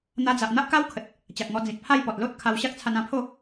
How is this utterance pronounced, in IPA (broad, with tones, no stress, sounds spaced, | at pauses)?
n̪ a˧ d͡z a˨ ʔ n̪ a˦ ʔ k a˦ w kʰ ə˨ t̚ | t͡ɕ a˨ k̚ ŋ ɔ˧ d͡z ĩ˨ t̚ pʰ a˥˧ j p ɔ˨ t̚ l o˦ t̚ kʰ a˧ w ɕ a˦ k̚ t͡sʰ a˧ n ã˧ pʰ o˥˧